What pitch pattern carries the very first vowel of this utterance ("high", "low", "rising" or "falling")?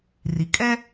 low